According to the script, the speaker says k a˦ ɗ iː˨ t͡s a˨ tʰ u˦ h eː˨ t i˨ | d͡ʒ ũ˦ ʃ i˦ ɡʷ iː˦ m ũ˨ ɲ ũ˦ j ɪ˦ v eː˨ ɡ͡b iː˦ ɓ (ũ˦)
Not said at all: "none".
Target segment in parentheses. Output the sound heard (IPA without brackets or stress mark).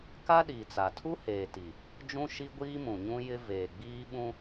ũ˦